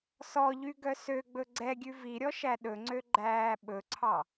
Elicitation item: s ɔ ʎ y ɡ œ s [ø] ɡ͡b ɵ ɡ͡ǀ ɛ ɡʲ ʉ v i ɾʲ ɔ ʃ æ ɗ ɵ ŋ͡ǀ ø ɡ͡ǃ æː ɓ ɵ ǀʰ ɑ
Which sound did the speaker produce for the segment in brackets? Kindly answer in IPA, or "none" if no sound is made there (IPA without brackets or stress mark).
ø